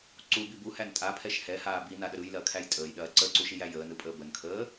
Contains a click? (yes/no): yes